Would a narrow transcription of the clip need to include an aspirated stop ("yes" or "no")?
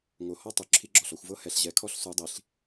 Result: yes